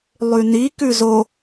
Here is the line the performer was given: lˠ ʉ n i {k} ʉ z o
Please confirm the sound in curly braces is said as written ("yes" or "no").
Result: yes